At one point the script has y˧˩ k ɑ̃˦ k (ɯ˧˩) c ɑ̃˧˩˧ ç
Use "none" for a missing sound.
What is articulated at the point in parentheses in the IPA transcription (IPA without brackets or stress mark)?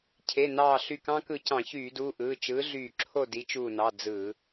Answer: ɯ˧˩